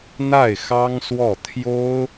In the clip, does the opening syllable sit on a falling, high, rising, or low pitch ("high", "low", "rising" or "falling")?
falling